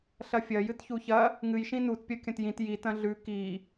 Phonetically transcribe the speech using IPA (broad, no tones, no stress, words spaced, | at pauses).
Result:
ɬɐfʲɐ jɨtçuçɐ | ŋɨj ʃĩnut pʲɐkʲɐ̃tjĩt jit ɐ̃ɮʉ ki